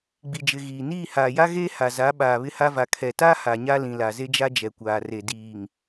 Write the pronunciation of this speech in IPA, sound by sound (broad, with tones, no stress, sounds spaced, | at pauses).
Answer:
ɡ͡b i˨ d͡ʒ ɪ˨ ɣ iː˨ n iː˦˨ h aː˨ j a˦ ɣ eː˦ h a˨ z a˨˦ ɓ aː˨ β ɪ˦ h a˦ v a˨ kʰ ɛ˨ t a˦ h a˨ ɲ a˦ l ĩ˨ l a˨ z e˦ d͡ʒ a˦ d͡ʒ ɛ˨ kʷ aː˨ r e˨ d iː˨ ŋ